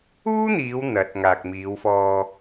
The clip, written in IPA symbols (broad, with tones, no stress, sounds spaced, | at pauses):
uː˥ n̪ iː˨˧ w n̪ ɐ˨˥ t̚ ŋ aː˨ k̚ m iː˨˧ w f ɔː˧